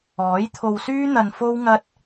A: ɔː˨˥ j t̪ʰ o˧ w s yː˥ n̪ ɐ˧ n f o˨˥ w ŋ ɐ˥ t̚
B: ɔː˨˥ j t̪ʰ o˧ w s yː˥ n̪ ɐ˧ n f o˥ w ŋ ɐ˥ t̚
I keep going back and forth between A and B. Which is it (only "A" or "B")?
B